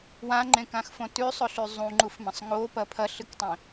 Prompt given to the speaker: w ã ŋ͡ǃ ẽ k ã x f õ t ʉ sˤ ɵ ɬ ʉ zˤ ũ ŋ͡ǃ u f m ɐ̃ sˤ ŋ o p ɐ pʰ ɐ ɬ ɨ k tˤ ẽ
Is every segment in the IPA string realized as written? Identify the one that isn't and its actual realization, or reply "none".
none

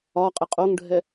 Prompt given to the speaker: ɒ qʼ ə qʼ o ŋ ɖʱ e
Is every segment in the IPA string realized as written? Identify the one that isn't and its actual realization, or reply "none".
e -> ɛ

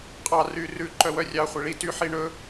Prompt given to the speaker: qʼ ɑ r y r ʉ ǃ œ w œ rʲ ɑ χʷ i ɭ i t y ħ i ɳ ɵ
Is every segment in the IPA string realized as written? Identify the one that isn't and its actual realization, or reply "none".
none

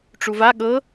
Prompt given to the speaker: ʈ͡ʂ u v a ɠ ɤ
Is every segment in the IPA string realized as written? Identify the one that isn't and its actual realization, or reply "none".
none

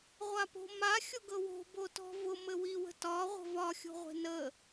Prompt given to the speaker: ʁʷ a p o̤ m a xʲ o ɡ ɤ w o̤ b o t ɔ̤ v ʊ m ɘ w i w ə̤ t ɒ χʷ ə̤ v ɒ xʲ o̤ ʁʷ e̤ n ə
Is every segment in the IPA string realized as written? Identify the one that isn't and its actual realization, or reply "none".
χʷ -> ʁʷ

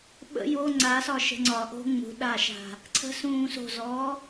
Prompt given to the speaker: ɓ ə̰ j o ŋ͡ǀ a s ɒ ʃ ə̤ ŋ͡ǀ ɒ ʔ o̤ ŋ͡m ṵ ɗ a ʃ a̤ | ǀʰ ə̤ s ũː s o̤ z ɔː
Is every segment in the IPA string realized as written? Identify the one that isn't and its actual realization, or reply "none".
ṵ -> ṳ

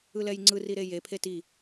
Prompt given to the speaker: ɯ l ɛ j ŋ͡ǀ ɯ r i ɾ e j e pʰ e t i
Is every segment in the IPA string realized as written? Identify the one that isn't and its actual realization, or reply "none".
none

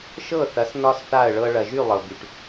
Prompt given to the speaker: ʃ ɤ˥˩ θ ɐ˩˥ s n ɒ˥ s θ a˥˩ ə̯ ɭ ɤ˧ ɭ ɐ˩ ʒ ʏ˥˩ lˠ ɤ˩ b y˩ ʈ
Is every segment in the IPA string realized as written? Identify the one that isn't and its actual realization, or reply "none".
ʏ˥˩ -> y˥˩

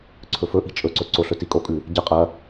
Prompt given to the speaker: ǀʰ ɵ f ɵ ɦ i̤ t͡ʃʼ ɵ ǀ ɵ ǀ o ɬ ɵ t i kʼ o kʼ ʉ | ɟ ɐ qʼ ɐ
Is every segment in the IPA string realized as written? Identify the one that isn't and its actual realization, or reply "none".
ɦ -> ʔ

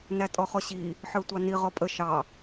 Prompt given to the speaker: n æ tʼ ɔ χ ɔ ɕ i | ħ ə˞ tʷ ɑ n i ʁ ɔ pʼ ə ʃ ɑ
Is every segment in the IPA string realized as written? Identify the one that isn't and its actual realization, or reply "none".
none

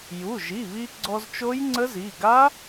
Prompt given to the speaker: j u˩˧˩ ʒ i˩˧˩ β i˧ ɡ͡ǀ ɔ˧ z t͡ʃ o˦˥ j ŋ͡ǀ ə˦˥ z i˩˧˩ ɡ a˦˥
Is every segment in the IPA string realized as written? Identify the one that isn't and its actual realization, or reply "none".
none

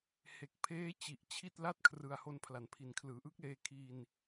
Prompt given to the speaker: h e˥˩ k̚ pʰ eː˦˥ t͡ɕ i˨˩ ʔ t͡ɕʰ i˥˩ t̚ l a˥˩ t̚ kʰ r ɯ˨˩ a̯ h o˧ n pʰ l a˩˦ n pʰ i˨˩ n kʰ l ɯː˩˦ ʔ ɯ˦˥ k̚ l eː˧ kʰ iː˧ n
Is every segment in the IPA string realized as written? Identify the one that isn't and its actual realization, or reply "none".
e˥˩ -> e˨˩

